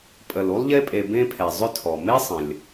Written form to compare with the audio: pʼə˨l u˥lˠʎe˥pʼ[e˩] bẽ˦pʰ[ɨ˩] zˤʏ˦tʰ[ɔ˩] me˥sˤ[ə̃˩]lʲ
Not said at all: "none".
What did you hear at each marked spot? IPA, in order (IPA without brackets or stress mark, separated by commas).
e˨, ɛ˩, ɔ˩, ə̃˩